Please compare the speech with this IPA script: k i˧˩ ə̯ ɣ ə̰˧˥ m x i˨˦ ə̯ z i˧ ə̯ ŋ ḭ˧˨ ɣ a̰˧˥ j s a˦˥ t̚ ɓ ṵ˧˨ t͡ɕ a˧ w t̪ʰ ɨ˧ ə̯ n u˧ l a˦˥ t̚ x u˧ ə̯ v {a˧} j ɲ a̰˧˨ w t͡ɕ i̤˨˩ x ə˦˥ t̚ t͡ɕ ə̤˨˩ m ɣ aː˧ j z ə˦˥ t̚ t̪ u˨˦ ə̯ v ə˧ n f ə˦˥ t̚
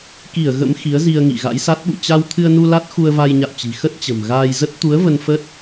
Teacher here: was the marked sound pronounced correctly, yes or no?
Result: yes